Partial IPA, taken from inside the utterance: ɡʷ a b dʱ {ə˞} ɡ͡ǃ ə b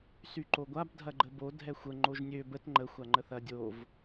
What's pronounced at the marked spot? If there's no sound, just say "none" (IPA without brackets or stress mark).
ɐ